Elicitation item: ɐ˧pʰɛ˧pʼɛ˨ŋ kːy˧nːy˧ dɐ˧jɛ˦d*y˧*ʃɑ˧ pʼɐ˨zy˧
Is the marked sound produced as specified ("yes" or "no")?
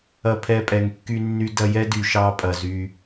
no